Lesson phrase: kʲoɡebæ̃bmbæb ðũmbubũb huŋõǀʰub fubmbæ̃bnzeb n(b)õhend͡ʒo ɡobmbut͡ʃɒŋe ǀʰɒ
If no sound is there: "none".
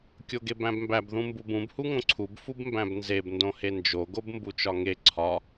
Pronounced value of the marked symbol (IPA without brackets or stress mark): d